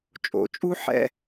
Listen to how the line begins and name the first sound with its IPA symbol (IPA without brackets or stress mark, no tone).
t͡ʃʼ